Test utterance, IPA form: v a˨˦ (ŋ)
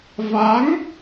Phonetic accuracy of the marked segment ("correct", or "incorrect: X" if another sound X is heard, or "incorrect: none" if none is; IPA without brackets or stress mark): correct